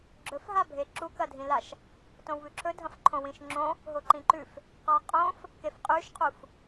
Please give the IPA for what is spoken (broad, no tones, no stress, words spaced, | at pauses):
ɡ͡ǁɵfɦabʱe ǁukɐdʱĩlaʃ | tõwβʉǁʰɵ dʱɐ̃fǃʰõwĩʃŋ͡ǁõ | ɦoǃĩǃʉf | qaqʼõf | kefqʼʉʃqʰuf